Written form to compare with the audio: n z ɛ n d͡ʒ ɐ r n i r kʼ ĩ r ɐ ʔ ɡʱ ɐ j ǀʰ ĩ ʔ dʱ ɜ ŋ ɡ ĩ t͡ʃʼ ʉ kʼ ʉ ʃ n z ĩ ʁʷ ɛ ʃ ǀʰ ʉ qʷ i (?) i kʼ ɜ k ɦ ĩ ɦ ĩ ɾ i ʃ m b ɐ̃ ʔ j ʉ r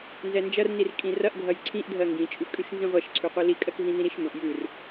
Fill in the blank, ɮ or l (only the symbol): l